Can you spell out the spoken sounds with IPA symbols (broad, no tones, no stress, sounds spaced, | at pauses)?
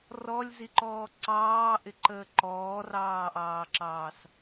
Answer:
r ɔ lʲ z i ǃ ɔː ǀ ɑː ʔ ɪ ǃ əː ǃ ɔː r ɑː ʔ ɑː ǁ ɑː s